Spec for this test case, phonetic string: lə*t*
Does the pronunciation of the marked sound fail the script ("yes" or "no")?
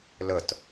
no